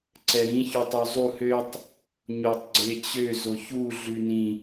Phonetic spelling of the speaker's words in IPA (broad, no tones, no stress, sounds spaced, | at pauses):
ǀ ɛ ɾ ĩ ç y tˤ ø zˤ u h ø tˤ | ɲ o tˤ ɡ͡ǀ e t͡ɕ ø z o ç u ɮ ʉ n ĩ